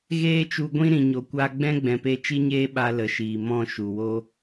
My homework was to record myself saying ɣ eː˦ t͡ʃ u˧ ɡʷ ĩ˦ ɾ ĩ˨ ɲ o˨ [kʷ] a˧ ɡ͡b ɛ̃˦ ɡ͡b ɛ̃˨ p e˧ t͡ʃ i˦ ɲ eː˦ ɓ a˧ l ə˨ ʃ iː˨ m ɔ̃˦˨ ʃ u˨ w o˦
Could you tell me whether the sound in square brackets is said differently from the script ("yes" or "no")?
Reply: no